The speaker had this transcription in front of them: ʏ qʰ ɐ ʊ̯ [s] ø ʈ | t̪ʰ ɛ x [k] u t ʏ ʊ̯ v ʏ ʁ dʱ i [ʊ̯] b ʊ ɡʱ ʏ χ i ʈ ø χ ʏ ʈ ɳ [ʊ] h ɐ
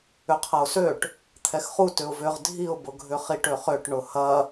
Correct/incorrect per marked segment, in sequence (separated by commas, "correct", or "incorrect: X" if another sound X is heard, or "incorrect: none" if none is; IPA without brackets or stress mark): correct, incorrect: χ, correct, correct